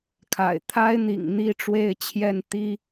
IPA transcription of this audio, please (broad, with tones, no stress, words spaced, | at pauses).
kʰa̰˨˩ɪ̯t̪ʰa˥ɪ̯n̪ḭ˨˩ŋ n̪i˥˧ ʈ͡ʂwe˥˧ɪ̯t͡ɕʰjɛ˥˩nt̪i˥